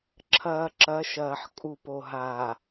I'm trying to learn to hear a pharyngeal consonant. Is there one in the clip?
yes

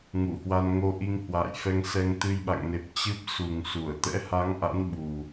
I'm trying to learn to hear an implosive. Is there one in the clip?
yes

